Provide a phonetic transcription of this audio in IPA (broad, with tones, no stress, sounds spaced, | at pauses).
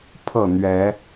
pʰ ɤ˥˨ n̪ ɥ ɛ˨˦